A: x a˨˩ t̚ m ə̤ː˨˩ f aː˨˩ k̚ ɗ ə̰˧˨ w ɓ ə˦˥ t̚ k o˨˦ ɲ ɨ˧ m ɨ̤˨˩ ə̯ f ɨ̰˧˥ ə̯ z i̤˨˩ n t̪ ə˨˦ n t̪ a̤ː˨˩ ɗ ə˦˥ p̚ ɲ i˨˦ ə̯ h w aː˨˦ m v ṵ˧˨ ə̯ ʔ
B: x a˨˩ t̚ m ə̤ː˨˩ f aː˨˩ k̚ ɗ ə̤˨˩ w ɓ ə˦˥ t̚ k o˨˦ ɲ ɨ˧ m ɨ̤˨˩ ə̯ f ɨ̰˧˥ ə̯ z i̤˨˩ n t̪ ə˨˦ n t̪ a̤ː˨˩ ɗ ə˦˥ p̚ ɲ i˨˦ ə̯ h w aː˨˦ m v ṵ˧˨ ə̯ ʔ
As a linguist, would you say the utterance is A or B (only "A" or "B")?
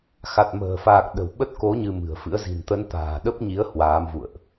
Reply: B